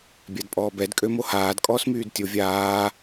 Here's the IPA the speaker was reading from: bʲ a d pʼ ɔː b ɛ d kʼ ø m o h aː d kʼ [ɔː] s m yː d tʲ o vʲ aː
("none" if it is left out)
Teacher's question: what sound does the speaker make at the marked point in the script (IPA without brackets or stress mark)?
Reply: ɔː